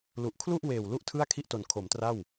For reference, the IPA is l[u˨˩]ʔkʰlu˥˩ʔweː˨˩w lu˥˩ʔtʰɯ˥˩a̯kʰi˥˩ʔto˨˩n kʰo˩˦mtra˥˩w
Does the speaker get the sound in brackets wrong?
no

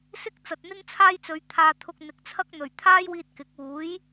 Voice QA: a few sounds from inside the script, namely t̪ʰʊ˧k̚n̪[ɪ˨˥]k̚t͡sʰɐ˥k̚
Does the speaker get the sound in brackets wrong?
no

